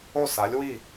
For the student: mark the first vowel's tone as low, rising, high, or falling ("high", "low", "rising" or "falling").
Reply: falling